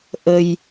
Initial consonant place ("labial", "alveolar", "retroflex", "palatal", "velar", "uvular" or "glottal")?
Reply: glottal